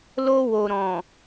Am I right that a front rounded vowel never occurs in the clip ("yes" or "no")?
yes